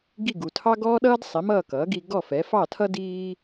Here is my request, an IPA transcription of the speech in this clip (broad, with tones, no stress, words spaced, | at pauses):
ɡi˥˩ɡu˩tʰɑ˥ ɡɔː˥ɗʌː˥dsˤi˩˥ mʌː˥˩ kʌː˩˥ɡi˧ɡɔ˥˩ fɛː˩˥fɑ˥˩tʰʌ˥ diː˥